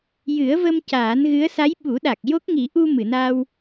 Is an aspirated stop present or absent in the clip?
absent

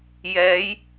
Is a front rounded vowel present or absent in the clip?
absent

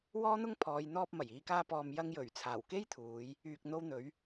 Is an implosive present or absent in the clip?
absent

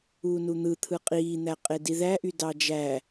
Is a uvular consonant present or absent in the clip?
present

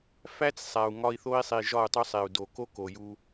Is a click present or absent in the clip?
absent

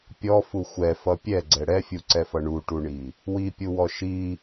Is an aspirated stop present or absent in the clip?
absent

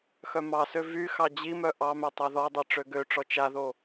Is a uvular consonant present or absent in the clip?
absent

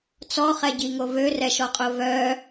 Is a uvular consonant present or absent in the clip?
present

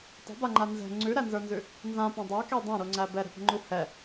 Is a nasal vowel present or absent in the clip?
present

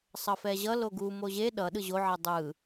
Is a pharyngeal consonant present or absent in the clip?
present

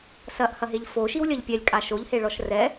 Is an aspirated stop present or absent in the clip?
absent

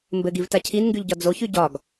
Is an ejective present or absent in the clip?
absent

